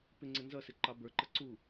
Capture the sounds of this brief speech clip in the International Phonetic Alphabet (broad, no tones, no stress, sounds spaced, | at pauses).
p ɪ ŋ͡ǀ ɪ n z ʌ s ɪ ǃ ɑ b ə˞ ǃ ʌ ǀ u